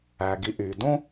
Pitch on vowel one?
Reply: low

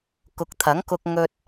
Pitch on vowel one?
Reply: rising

